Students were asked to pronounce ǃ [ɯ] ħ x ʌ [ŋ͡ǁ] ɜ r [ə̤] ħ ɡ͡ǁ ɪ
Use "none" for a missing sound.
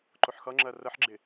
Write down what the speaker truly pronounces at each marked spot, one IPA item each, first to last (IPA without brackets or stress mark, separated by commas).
ʊ, ŋ͡ǁ, ə